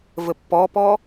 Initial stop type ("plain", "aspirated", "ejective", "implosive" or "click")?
plain